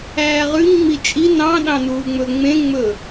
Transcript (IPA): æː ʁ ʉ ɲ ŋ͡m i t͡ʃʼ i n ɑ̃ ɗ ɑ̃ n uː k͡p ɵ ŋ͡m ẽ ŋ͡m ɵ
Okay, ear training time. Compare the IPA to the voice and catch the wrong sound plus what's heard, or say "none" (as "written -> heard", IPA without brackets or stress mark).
k͡p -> ŋ͡m